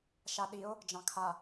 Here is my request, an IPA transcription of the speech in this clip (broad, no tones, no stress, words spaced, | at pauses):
ʃaɗio̯ | d͡ʒɑ̃kʰa